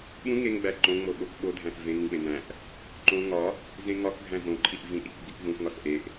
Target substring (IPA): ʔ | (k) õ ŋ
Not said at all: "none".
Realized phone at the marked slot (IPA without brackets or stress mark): ǃ